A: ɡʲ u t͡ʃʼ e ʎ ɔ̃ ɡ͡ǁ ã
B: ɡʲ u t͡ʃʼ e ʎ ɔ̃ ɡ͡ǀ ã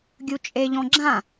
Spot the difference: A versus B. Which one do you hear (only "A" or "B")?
A